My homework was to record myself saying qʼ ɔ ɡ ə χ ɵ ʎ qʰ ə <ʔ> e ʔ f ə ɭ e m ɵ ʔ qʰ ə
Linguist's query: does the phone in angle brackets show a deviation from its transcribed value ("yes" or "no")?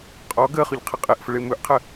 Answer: yes